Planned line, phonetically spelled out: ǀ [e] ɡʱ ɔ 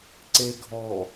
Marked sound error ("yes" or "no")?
no